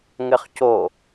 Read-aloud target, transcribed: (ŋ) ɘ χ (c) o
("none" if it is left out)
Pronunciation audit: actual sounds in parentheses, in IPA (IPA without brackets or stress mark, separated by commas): ŋ, c